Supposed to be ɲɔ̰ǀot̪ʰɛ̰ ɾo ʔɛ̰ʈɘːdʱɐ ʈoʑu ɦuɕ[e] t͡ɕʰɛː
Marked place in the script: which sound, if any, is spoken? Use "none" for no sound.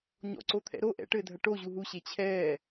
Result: e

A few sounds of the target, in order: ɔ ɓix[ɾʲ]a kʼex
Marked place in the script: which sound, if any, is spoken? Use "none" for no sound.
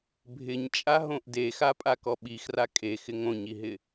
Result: r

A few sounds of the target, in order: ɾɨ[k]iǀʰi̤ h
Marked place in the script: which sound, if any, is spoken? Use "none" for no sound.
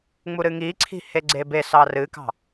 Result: ŋ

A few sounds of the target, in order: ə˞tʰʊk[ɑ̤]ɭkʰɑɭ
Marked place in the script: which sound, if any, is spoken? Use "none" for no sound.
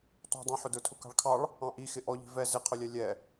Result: ɑ̤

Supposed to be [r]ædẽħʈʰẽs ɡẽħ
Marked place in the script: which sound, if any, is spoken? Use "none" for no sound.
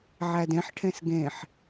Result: ʕ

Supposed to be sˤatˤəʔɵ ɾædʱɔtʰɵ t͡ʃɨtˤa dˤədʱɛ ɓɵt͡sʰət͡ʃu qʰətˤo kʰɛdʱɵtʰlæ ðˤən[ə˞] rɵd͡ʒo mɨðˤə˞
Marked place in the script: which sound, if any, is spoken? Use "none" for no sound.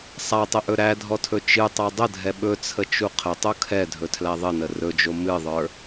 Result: ə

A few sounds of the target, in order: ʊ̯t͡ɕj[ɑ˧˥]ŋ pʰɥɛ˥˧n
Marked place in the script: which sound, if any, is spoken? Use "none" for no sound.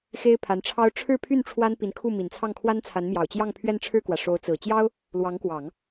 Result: ɑ˥˧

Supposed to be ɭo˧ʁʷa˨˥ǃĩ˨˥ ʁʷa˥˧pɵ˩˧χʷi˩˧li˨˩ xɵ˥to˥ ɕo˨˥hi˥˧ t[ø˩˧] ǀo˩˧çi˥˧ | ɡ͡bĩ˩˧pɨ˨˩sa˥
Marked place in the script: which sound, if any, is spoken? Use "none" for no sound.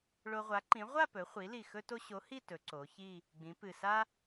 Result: ɵ˩˧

